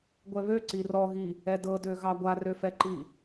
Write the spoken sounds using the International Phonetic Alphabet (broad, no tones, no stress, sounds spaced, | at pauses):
ɡʷ ɛ β ø ǀ i r ɔ ɣ i | ɛ d ɤ d ø ɣ ɑ ɡʷ a r ø f ɛ ǃ i